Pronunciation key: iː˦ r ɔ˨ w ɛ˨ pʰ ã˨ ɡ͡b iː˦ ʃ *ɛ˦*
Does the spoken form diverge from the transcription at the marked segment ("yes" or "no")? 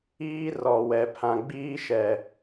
yes